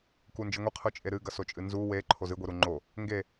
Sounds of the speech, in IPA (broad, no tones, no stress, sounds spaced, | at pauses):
k u n d͡ʒ ɨ ŋʷ e qʰ ɵ t͡ʃʼ e ɾ ɨ ɡ ɐ s o t͡ʃʼ ɨ n z u w e ǃʰ o z ɨ ɡʷ i ɾ u ŋ͡ǃ o | ŋ ɡ e